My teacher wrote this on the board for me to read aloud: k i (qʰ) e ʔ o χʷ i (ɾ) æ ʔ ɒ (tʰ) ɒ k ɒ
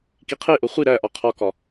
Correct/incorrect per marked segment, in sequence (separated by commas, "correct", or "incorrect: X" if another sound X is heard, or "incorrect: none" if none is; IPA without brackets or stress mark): correct, correct, incorrect: qʰ